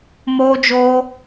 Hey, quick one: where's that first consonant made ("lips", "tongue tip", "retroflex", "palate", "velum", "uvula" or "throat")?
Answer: lips